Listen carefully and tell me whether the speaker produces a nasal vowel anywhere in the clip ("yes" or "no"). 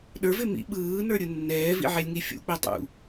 no